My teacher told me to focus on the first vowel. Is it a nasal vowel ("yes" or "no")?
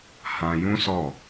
yes